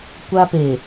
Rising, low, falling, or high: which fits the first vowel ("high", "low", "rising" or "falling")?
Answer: high